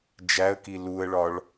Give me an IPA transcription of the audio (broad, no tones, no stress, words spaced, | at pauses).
d͡ʒæə̯ki luə̯ɭɒɭ